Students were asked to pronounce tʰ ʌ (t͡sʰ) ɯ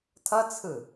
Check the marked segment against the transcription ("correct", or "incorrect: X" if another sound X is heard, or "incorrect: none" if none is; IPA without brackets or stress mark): correct